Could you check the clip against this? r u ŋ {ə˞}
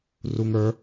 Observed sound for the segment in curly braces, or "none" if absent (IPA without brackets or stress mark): ə˞